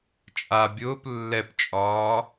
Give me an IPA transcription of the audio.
t͡ʃʼ a bʲ ʊː p lː ɛ p t͡ʃʼ ɒː

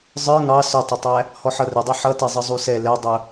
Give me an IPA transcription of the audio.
zˤ ə˞ ŋ ɑ s ʊ tˤ ɪ tˤ æ | h ɔ ħ ʌ r ɪ dˤ i ħ ʌ t ɛ zˤ ə zˤ u s ɛ l ɛ dˤ ʊ

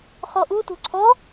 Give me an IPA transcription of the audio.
χ ɔ ʔ u t ṳ ǀʰ ɔ

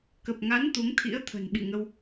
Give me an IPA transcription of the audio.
k ə˨˩ p̚ ŋ a˨˦ n t̪ u˨˦ ŋ t̪ʰ ḭ˧˥ ə̯ t̪ʰ ə̤˨˩ n ɓ ḭ˧˨ ŋ ə˧ w

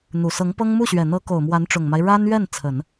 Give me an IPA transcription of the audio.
n̪ u˨˩ s ɤ˧˥ ŋ p ɤ˥ ŋ m u˥˩ ɕ ɥ ɛ˨˩ n̪ ɤ˧˥ k o˨˩ ʊ̯ m w a˧˥ n ʈ͡ʂ ʊ˨˩ ŋ m a˦ ɪ̯ ɻ a˥ n ɥ ɛ˥˩ n t͡sʰ ə˨˩˦ n

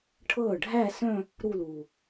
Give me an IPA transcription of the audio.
ʈʰ ɤː˥˩ ɖʱ æ˥˧ s œ̃˥˧ | ɾ u˥˧ l uː˨˩

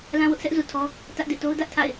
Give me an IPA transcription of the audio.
l ã˦ w ʊ˦ ʔ s ɛ˦ ʔ z u˨ tʰ ɔ˦ | t ä˦ ʔ d ḛ˦˨ t o˦ ʊ̯ d ä˦ ʔ tʰ a̰˦˨ ɪ̯

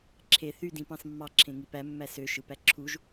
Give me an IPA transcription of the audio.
ǁʰ e θ y d ĩ p ɑ̃ s mː ɑ ǁʰ ẽ ŋ i p æ mː æ s ø ʃ ɯ p æ ǁʰ u ʒ

